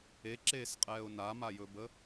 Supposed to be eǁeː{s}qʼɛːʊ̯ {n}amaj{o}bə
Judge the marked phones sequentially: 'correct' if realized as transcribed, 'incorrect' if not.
correct, correct, incorrect

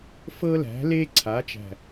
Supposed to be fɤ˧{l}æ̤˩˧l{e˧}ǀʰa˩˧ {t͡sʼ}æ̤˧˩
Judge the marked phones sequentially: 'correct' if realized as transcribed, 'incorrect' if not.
correct, correct, incorrect

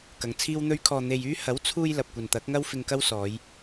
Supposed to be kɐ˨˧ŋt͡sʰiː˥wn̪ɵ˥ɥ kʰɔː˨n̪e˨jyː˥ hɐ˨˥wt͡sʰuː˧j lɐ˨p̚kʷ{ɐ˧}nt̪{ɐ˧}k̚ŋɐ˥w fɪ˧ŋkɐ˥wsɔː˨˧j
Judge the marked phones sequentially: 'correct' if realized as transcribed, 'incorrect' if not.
incorrect, incorrect

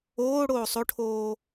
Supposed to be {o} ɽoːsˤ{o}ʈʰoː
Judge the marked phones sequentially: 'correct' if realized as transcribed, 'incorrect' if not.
incorrect, correct

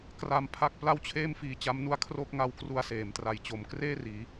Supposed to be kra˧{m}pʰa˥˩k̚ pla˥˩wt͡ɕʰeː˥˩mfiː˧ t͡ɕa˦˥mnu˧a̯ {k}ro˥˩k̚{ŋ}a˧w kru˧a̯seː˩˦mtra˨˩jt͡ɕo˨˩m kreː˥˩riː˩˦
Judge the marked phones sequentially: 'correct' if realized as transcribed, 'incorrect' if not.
correct, incorrect, correct

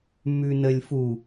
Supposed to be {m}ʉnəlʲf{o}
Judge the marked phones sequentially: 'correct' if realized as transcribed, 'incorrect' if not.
correct, incorrect

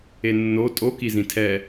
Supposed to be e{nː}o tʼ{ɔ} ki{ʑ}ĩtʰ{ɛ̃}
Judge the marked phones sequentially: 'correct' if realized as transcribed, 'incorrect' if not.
correct, incorrect, incorrect, incorrect

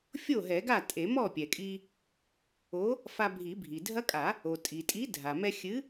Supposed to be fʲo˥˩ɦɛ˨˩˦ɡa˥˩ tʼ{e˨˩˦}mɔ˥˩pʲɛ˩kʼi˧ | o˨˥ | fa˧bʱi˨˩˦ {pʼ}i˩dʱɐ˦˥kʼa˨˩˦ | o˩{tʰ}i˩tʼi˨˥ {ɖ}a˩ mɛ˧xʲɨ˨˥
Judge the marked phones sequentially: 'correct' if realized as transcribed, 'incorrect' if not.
correct, incorrect, incorrect, incorrect

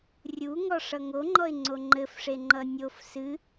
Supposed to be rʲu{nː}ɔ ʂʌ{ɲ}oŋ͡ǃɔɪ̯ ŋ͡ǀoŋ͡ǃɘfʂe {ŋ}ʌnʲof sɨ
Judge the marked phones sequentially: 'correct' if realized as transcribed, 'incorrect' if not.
incorrect, incorrect, incorrect

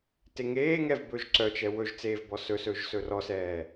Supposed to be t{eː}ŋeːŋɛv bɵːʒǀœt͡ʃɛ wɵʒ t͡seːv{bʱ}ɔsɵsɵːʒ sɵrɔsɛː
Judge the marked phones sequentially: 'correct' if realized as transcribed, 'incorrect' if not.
incorrect, incorrect

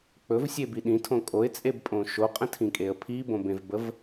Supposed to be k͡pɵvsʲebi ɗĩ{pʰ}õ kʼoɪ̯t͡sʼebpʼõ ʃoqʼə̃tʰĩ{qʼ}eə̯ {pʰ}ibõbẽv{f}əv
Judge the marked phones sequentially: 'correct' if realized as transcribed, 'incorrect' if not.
incorrect, incorrect, correct, incorrect

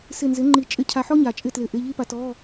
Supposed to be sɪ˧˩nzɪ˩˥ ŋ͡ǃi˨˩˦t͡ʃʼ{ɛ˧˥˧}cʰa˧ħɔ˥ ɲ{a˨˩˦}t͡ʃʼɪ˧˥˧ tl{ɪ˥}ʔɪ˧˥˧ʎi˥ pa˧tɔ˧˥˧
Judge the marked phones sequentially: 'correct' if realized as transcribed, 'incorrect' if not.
incorrect, correct, incorrect

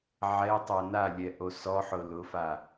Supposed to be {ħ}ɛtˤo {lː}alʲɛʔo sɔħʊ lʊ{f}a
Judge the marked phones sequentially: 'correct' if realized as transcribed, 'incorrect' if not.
incorrect, incorrect, correct

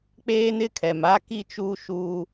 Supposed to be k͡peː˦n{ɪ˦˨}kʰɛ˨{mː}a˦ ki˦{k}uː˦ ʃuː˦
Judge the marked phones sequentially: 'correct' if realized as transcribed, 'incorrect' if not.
incorrect, incorrect, incorrect

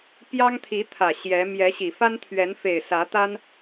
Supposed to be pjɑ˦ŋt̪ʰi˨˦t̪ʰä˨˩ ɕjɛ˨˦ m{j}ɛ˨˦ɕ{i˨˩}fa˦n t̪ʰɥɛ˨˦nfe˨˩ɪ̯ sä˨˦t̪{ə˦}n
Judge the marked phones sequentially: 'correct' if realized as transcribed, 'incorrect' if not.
correct, correct, incorrect

